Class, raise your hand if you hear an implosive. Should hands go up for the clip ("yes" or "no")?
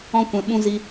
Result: yes